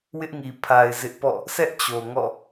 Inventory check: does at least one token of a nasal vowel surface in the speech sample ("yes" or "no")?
no